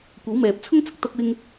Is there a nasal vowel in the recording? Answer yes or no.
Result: no